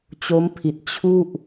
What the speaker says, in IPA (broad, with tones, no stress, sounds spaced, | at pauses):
t͡ɕ o˦˥ m pʰ i˨˩ t̚ t͡ɕʰ u˥˩ ʔ